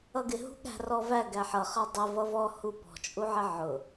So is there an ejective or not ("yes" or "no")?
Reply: yes